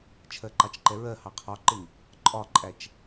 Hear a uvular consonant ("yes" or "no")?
yes